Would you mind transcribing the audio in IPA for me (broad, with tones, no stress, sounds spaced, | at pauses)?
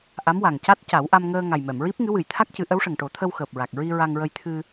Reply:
ʔ a˧˥ m w a˨˩ ŋ c a˦˥ t̚ c a˨˩˦ w ʔ a˧ m ŋ əː˧ ŋ a˨˩ j m ɛ˨˩˨ m ɹ i˦˥ p̚ ŋ ɨ˧˥ w ɨ˨˩ j t̪ʰ a˦˥ k̚ c ɨ˨˩˦ ʔ ə˧˥ w ʂ ə˨˩ ŋ ʈ o˨˩˦ t̪ʰ ə˧ w x əː˨˩ p̚ ɹ a˨˩ k̚ ɹ i˧ ɹ a˧ ŋ ɹ ə˧ j t̪ʰ ɨ˧